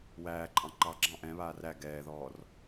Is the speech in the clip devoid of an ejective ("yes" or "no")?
no